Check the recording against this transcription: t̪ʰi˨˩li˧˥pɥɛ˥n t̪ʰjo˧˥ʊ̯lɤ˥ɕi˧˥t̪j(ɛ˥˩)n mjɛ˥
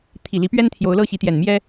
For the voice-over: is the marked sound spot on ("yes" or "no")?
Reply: no